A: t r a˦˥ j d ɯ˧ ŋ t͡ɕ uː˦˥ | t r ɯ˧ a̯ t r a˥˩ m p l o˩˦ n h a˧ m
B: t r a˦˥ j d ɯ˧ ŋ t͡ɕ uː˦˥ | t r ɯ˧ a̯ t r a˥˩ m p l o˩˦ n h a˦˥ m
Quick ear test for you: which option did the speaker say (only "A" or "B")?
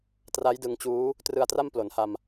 A